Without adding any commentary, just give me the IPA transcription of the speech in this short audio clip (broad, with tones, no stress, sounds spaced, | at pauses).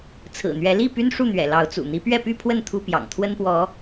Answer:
t͡sʰ ɹ̩˨˩ n̪ ɥ ɛ˨˦ l i˥˨ p y˦ n ʂ u˥˨ n̪ ɥ ɛ̰˨˩ l ɑ˨˦ ʊ̯ t͡s ṵ˨˩ n̪ i˨˦ p ɥ ɛ˥˨ p y˥˨ pʰ w ə˥˨ n t̪ʰ u˦ p j ɑ̰˨˩ ŋ t̪ʰ w ə˦ n p w ɔ˨˦